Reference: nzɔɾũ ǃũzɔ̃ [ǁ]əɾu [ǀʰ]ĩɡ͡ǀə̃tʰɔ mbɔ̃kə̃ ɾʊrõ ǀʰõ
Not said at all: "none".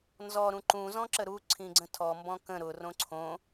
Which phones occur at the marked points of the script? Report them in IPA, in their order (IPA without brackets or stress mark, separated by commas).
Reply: ǁ, ǀʰ